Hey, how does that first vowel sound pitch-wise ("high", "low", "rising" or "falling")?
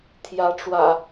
rising